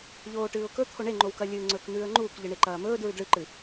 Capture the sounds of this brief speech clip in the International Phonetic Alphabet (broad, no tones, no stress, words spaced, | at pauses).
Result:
ʎoːʈɨːʊ̯kɵ t̪ʰoɳeŋ͡ǃowkɐ lʲɨːŋ͡ǀɵːkn̪ʉːə̯ŋ͡ǃuːk ʎɨɳeǃɐːmɵːd ɹʉdɭɨǃɨ